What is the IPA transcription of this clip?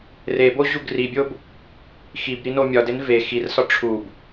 r e b o ʑ u ɡ r i bʲ o b | x i b ɾ i n o mʲ ɒ d e n v e x i r s ɒ ʈ͡ʂʰ u b

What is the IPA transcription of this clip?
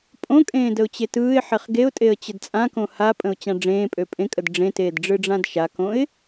pʼ õ kʼ ẽː d ə ʊ̯ t͡ɕ e t ɯː ɪ̯ ħ e χ ɡ e ʊ̯ tʼ e ə̯ t͡ɕ ə d t͡sʼ ã k õ h a pʼ ə̃ ʊ̯ t͡ɕ ã ɖ͡ʐ ẽː pʼ ø pʼ ẽ kʼ ə d ɖ͡ʐ ẽ t eː d ɖ͡ʐ ɯ ɖ͡ʐ ã d ʃ a k õ ɪ̯

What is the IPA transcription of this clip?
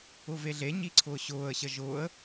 ʊ v e ɮ e ɲ i ǀʰ ʊː ɕ ʊː ə̯ ɕ ə ʒ ʊː ə̯

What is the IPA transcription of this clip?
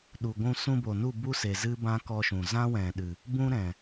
ɗ u˨ ɡʷ ũ˧ s ũ˧ b o˨ n u˦˨ b u˦ s e˨ z ɨ˦ b ã˦ k ɔ˧ ʃ ũ˨ z ã˦ w ɛ̃˨ ɗ ɨ˨ | b ũ˦ ɾ ɛ̃˨

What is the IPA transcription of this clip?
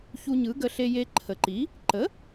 ç u˧ ɲ ɯ˩˥ ɡ ə˧ ɬ e˧ j e˧ ǃʰ ə˩˧ ǃ i˩˥ | ǃ ə˩˥

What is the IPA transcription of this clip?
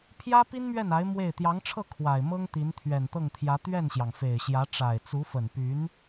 pʰ j ä˥ p i˥ n m ɥ ɛ˥˩ n a˧˥ ɪ̯ m w e˥˩ ɪ̯ t̪ j ɑ˧˥ ŋ ʈ͡ʂʰ ɤ˥˩ kʰ w a˨˩ ɪ̯ m ɤ˥ ŋ t̪ i˧˥ n t̪ʰ ɥ ɛ˨˩ n t̪ ɤ˥˩ ŋ t̪ʰ j ä˧˥ t̪ ɥ ɛ˥˩ n ɕ j ɑ˩ ŋ f e˨˩ ɪ̯ ɕ j ä˧˥ ʈ͡ʂ a˨˩ ɪ̯ t͡s u˧˥ f ə˨˩ n p y˧˥ n

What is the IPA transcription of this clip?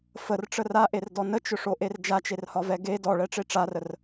f ə r ʈ͡ʂ ə r a ʔ e r d ɔ n ə t͡ʃ ʊ ʂ o ʔ e r d͡ʒ a t͡ʃ e r h ɒ v ɛ ɡ e d ɔ ɭ ɛ ʈ͡ʂ e ʈ͡ʂ a r ə r

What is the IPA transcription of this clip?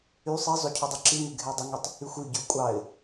y sˤ i zˤ o cʰ o dˤ ʉ ǁ i ŋ ʉ ɡʱ e dˤ ə ŋ i tˤ | y xʷ y ɟ ʉ ʊ̯ kʷʼ ɑ ɪ̯

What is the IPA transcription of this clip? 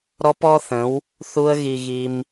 ɾ ɔ˦ p ɔ˦ θ ə̃˨˦ w | θ u˦ ə̯ ɣ i˧ ɣ i˧ m

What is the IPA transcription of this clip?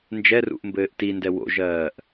n d͡ʒ ɛ r ṵ ʔ m b ɘː ʔ t i n d ɛ w o̰ ʒ ɜː ʔ

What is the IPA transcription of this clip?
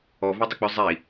ɔ v i dˤ ʊ k͡p ʏ zˤ i

